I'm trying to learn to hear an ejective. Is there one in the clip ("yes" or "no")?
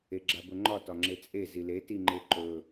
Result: yes